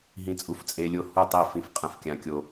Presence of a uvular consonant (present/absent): present